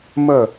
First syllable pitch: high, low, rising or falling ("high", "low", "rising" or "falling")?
falling